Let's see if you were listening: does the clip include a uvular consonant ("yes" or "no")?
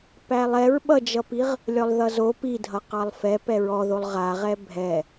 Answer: yes